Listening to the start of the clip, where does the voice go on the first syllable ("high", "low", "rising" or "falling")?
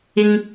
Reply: low